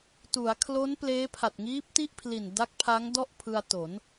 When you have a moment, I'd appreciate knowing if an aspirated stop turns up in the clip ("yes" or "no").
yes